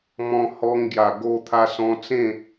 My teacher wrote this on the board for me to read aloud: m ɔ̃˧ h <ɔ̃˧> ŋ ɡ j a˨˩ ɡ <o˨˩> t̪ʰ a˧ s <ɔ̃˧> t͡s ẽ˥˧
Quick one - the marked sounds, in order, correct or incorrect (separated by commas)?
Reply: incorrect, incorrect, correct